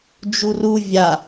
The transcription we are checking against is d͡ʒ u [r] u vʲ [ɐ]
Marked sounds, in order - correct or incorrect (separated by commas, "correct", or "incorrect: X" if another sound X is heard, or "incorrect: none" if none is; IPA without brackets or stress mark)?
correct, incorrect: a